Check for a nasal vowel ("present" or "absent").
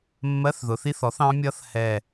present